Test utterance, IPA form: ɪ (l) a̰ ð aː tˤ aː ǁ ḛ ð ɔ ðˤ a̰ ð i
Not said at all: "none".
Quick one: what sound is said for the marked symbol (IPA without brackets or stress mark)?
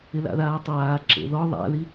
l